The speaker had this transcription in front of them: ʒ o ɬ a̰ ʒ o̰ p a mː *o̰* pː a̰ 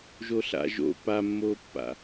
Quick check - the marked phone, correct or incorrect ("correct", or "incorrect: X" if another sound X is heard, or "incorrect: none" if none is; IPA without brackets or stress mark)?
incorrect: o